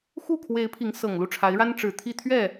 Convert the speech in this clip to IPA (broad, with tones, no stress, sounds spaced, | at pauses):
x u˥˩ kʰ w e˧˥ ɪ̯ pʰ i˧˥ ŋ s ɤ˨˩ ŋ l u˥˩ ʈ͡ʂʰ a˧˥ ɪ̯ ɻ a˥ n ʈ͡ʂ ɻ̩˨˩ t̪ʰ i˥˧ t̪ʰ ɥ ɛ˥˩